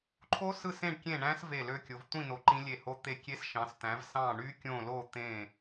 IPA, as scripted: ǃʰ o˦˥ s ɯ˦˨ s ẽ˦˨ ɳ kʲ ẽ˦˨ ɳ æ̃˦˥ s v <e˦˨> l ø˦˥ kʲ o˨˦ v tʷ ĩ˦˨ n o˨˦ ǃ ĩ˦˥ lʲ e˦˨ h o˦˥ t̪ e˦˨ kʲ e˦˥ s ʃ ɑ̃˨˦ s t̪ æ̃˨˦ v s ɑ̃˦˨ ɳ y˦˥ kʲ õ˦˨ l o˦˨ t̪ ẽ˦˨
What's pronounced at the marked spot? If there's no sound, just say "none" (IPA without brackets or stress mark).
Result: e˦˨